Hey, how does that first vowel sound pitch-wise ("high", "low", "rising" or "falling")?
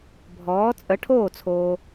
rising